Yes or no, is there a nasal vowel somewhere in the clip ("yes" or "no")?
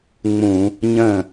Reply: yes